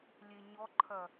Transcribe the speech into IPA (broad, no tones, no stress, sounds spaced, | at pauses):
lʲ e ɲ ɔ ǃʰ ɐ